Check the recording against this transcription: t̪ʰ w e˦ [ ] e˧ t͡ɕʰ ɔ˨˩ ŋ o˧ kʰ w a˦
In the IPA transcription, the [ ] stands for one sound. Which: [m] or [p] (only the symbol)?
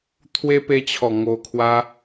p